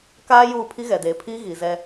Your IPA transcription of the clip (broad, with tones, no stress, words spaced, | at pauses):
kaː˦ juː˦˨ pʰi˦ɣɛ˨deː˨pʰiː˦ ɣi˨zɛ˦